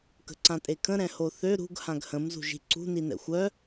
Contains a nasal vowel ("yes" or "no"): yes